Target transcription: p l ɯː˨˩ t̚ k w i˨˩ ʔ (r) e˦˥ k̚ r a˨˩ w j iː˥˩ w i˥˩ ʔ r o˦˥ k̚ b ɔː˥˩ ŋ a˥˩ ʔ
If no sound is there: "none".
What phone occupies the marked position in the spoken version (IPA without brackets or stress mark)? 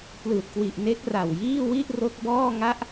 n